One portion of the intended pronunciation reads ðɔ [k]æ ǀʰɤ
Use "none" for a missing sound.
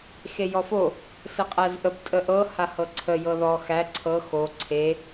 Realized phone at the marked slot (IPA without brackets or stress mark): x